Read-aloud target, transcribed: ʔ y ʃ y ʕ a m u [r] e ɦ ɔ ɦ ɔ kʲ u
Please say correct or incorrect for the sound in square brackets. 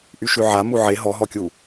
incorrect: ʕ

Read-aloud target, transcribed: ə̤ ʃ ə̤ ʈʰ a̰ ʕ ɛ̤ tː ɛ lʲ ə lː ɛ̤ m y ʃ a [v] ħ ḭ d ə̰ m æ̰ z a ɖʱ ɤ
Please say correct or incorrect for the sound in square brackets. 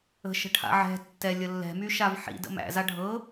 correct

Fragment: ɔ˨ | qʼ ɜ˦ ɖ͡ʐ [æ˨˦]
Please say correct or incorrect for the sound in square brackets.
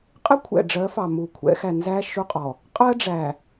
incorrect: æ˨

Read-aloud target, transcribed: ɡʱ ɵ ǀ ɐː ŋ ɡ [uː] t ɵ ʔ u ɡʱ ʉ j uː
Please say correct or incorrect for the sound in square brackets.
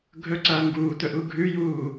correct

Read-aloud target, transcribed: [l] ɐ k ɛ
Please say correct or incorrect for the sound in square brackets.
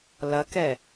correct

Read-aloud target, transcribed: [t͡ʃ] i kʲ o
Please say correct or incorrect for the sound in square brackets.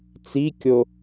incorrect: t͡s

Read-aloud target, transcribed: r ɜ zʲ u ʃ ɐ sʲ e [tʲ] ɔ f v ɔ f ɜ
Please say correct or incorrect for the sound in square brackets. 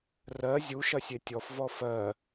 correct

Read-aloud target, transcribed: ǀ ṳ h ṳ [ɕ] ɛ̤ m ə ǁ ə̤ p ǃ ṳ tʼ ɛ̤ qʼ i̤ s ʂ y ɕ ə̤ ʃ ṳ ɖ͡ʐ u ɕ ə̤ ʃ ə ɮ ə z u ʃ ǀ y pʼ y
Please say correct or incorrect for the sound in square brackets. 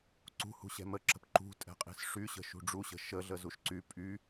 correct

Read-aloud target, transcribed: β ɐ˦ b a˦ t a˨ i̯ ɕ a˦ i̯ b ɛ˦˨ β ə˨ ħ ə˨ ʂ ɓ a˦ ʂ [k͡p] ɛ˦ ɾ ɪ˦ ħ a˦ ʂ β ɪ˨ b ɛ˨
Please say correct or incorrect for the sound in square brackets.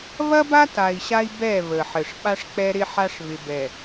correct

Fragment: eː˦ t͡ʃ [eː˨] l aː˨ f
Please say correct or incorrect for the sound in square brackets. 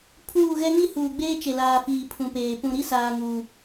incorrect: e˨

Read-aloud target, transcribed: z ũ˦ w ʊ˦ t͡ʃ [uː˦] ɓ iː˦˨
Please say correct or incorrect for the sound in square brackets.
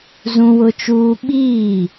correct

